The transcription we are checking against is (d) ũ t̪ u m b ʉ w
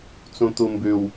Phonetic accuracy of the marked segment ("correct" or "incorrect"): incorrect